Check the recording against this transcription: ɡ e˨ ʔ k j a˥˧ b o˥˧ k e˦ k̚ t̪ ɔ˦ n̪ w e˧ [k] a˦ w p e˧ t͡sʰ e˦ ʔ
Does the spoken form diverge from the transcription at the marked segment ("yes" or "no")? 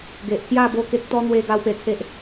yes